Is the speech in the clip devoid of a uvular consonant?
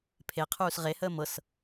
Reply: no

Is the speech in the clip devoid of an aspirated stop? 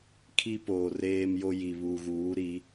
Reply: no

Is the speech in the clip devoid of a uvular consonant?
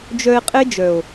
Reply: no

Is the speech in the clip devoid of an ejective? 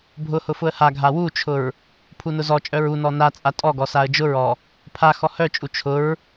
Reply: no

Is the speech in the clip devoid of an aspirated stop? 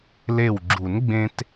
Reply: yes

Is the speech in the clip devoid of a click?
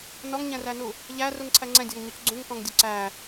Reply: no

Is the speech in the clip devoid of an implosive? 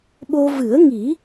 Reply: no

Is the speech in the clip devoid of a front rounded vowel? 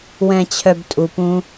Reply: no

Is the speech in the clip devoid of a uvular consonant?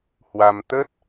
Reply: yes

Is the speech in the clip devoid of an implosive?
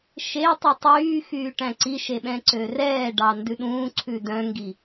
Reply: no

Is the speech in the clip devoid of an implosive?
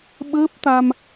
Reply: no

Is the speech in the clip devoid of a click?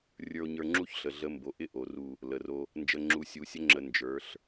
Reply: no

